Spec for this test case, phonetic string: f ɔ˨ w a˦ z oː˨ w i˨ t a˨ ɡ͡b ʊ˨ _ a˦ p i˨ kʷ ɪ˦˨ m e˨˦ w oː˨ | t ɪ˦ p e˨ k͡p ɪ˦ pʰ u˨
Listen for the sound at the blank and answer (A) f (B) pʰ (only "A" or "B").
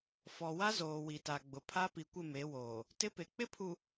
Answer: B